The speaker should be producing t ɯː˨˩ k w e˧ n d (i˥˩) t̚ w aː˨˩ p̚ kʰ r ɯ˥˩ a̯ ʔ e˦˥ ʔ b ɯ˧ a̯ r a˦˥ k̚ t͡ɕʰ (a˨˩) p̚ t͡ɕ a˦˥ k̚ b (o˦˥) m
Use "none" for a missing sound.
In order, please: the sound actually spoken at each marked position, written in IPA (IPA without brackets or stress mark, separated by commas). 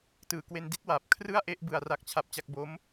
i˥˩, a˦˥, o˦˥